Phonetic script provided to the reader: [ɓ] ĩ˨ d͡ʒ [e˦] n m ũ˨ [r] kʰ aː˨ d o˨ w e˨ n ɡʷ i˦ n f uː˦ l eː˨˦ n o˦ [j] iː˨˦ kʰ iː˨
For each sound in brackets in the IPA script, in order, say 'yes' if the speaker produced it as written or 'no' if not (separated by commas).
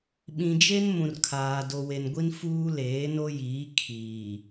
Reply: yes, yes, yes, yes